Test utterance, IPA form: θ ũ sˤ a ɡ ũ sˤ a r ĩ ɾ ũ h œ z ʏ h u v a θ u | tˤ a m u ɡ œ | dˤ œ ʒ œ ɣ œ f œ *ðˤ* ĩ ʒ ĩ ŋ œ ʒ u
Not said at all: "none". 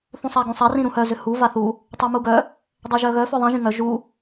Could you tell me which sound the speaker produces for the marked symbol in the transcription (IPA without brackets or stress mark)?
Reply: ðˤ